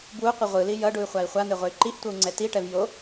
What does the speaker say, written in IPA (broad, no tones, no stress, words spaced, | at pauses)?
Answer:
bwuqʷi ʁʷɯli jʌɖuy̯χʷai̯ χʷan̪eʁʷɛy̯ ǃiʔtʷʌu̯ŋ͡ǀɛ tiʈɛv jo